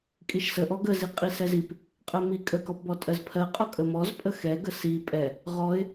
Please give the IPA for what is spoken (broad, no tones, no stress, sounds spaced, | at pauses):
kʼ i ʃ s ə ʔ ɔ ɡ ə z i qʼ i s ɛ z i p | qʼ ɜ m i kʼ ə k ɔ p b ɔ tʼ ɜ z pʰ ɜ qʼ ɔ kʼ ə m ɔ z pʼ ə x ɛ ɡ ə s i pʼ ɛ | ʁ ɔ ɪ̯